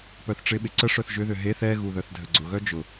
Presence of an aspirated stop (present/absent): absent